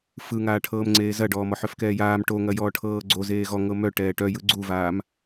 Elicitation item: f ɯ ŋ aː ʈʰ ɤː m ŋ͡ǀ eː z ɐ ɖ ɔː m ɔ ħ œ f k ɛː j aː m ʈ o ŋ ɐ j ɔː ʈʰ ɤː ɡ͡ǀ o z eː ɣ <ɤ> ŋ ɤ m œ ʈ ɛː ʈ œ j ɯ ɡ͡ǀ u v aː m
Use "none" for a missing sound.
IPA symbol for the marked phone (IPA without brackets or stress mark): ɔ